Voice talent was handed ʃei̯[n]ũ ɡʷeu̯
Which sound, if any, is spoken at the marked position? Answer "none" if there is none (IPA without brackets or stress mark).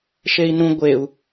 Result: n